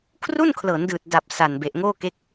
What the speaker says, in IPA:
kʰ r u˥˩ n kʰ l ɤː˩˦ n d ɯː˨˩ t̚ d a˨˩ p̚ s a˨˩ n b e˨˩ ʔ ŋ oː˥˩ k e˦˥ k̚

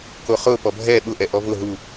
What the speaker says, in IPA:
k o χ ʊ p ɔ bʱ ɛ ɓ ʊ ʔ ɛ ʔ ɔ v ʊ ɦ u

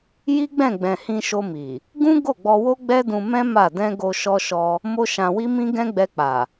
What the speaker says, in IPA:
j i˦ ɡ͡b ɛ̃˦˨ ɡ͡b ɛ̃˨ h ĩ˧ ʃ o˧ m i˨ | ɡ ũ˦ ɡ o˦˨ ɡ͡b ɔ˧ w o˦ ɡ͡b ɛ˦ d ũ˧ m ɛ̃˦ m a˦˨ d ɛ̃˧ ɡ o˧ ʃ ɔ˧ ʃ ɔ˧ | m o˦ ʃ ã˧ w i˦ m ĩ˦ ɡ ɛ̃˦ ɡ͡b ɛ˧ k͡p a˨

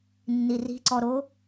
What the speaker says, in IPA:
nː i r i̤ ǀ ɔ ɾ o

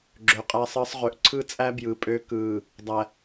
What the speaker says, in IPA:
ɡ͡ǁ ø˨ qʼ æ˦ sˤ əː˦ sˤ ʁ ø˨ ʔ ǀʰ ɯ˦ t͡sʼ æ˦ b j ɯ˨ pʼ ø˦ k ɯː˨ | dˤ æ˨

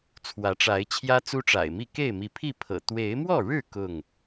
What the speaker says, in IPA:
t͡sʰ w ä˨˦ ʈ͡ʂ a˨˦ ɪ̯ t͡ɕʰ j ä˦ t͡s u˦ ʈ͡ʂ a̰˨˩ ɪ̯ m i˥˨ k e˥˨ ɪ̯ m i˨˦ pʰ i˥˨ pʰ ɤ̰˨˩ t̪ w e˨˦ ɪ̯ m w ɔ˥˨ ɻ ɻ̩˥˨ k ʊ˥˨ ŋ

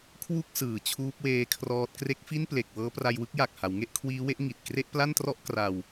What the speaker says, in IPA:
kʰ w u˥˩ k̚ s ɯː˨˩ t͡ɕʰ uː˦˥ p̚ w eː˦˥ kʰ r ɔː˦˥ t̚ k r e˦˥ k̚ f i˥˩ n p l e˨˩ k̚ w ɤː˦˥ p r a˧ j w ɯ˥˩ k̚ j a˨˩ k̚ h a˩˦ w ŋ e˥˩ ʔ kʰ w iː˦˥ w e˥˩ ʔ ŋ i˨˩ t̚ k r e˥˩ ʔ p l a˥˩ n t r ɔ˥˩ ʔ k r a˧ w

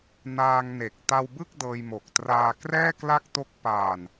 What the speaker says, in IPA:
n aː˧ ŋ n e˨˩ k̚ t a˧ w b ɯ˥˩ k̚ d ɤː˧ j m o˨˩ k̚ t r aː˧ k r ɛː˥˩ k l a˥˩ k̚ t o˦˥ k̚ p aː˨˩ n

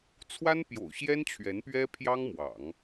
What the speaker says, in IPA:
t͡sʰ w a˥ n p j o̰˨˩ ʊ̯ ɕ j ɛ˥ n t͡ɕʰ ɥ ɛ˧˥ n p ɥ ɛ˥ pʰ j ɑ˥ ŋ m w ɑ̰˨˩˦ ŋ

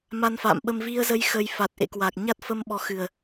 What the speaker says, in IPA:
m a˧ n f a̰ː˧˨ m ɓ ə˧ m v i˧ ə̯ z ə˧ j x ə˧ j f a˨˩ t̚ ʔ ḛ˧˨ k w a˨˩ k̚ ɲ a˦˥ t̚ f ə˧ m ɓ ɔ˨˦ x ɨ˨˩ ə̯

